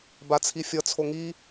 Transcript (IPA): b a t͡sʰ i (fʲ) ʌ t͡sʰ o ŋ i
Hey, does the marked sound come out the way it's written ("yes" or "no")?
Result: yes